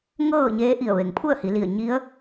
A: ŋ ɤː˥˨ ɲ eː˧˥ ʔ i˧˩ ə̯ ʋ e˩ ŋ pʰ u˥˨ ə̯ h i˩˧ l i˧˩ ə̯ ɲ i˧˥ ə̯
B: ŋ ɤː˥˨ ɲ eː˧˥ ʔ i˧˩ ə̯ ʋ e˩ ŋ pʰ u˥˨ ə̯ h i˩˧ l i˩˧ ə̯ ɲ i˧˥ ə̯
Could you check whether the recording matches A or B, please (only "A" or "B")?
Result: A